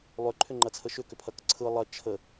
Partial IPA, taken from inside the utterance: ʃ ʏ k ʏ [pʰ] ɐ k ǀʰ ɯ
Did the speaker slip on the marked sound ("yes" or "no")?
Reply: no